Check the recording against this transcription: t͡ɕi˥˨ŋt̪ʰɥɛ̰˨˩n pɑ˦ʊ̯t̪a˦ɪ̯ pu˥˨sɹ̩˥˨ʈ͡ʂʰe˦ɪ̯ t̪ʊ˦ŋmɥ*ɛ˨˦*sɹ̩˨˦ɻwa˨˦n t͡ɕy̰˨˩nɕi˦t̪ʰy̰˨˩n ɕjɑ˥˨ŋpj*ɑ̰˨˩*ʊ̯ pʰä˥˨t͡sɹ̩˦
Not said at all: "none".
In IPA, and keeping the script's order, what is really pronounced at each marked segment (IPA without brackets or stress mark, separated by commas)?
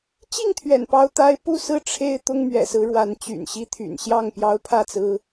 ɛ̰˨˩, ɑ˦